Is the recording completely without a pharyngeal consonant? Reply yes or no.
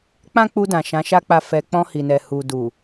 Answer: yes